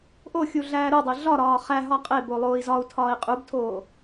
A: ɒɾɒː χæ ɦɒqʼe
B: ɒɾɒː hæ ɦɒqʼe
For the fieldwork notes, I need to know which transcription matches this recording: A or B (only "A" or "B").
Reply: A